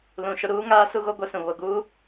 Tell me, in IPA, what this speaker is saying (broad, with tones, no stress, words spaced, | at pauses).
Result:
lũ˨ʃʊ˦ ɾuː˦ŋaː˦ su˦ɣo˦ ɡʷɛ˦sũ˨ βo˨ɡuː˦